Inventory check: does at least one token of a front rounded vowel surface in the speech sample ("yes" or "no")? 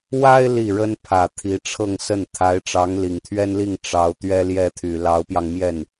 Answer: yes